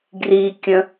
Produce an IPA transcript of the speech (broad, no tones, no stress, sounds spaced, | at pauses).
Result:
ɡ r i kʲ ə̃